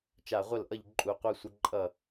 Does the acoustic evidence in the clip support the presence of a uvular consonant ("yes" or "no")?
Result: yes